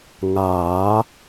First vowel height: low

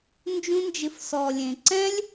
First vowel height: high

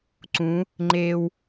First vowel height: high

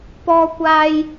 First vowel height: mid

